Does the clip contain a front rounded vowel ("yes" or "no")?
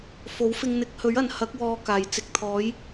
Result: no